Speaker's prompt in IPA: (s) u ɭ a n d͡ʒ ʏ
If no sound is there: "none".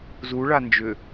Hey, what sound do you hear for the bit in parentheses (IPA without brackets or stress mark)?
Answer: z